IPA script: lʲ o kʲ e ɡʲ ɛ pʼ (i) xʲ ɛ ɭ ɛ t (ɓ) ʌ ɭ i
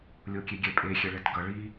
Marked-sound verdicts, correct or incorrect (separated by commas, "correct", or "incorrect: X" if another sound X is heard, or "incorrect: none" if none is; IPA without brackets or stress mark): incorrect: e, incorrect: ɡ